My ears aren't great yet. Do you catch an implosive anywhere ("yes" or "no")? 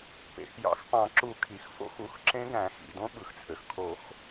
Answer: yes